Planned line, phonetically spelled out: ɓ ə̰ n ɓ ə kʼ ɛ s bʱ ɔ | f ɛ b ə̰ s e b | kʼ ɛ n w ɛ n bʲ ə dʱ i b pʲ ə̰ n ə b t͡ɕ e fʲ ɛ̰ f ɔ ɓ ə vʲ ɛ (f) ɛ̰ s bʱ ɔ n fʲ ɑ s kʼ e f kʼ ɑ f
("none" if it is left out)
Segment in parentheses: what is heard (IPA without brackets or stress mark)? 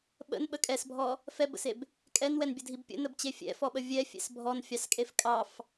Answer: fʲ